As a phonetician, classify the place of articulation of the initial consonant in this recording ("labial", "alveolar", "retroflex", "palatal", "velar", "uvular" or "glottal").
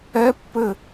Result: labial